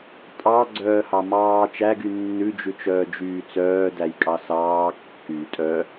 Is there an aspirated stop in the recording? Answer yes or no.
no